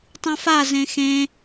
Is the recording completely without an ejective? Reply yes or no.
yes